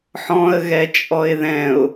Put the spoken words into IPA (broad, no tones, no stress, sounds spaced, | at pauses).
ħ ɔ̃ ə̯ ɣ ɛ t͡ʃʼ ɔ ɪ̯ ð ɛ̃ ʊ̯